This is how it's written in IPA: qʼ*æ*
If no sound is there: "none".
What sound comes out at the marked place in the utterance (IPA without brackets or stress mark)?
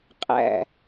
æ̰